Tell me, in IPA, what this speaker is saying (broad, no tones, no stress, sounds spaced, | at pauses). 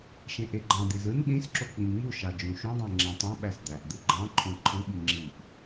ʃ ẽ ʔ e ɡ͡ǃ ɑ̃ d̪ i z ɯ n ɗ ĩ s ǁ o k͡p ĩ ŋ͡m u ʃ ɑ d͡ʒ ũ ʃ ũ dˤ ẽ ŋ͡ǁ æ̃ tˤ õ ɓ æ s d̪ æ ʔ d̪ ɯ ɡ͡ǃ ɑ̃ ǃʰ õ ǃʰ ɯ ɓ i ŋ͡ǁ i ʔ